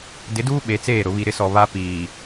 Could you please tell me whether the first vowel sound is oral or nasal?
oral